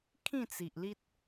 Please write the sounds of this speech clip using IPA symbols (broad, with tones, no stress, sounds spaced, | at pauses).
kʰ ĩ˥˧ t͡s i˨ ʔ l i˦ t̚